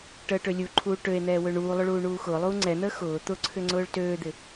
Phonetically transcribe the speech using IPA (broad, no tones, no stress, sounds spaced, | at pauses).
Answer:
ʈ əː ʈ ø lʲ u ǃʰ uː ʈ ø e̯ n̪ ɛː w ø ɳ uː lˠ ʊ ɭ uː ɳ uː x ʊː lˠ uː ŋ͡ǀ ɛ n̪ əː x ʊː t̪ ʊ ǀʰ ʏ ŋ͡ǀ ʊː ɭ t øː d̪ ɪ